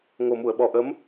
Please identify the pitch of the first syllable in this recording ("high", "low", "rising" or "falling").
low